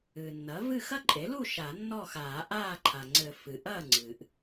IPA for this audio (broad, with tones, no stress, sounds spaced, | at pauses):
ɨː˩ nː ɐ˩˥ v ɨ˥˨ x ɐ˥ ǃʼ e˩˥ l u˥˨ ʃ a˨˩˦ nː ɔ˥˨ x aː˨˩˦ ʔ aː˥˨ ǃʰ a˩ ŋ͡ǀ ɘ˨˩˦ f ɨ˩ ʔ ɐː˥˨ ŋ͡ǀ ɨː˩ ʔ